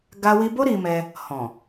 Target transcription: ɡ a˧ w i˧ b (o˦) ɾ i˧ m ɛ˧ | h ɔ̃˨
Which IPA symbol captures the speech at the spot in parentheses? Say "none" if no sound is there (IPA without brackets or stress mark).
o˦